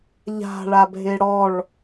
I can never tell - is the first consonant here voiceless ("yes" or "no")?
no